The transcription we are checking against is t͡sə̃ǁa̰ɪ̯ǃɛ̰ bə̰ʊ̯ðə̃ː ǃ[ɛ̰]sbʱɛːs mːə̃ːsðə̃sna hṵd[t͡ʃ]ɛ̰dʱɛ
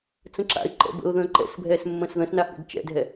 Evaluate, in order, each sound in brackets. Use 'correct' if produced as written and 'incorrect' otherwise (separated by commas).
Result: correct, correct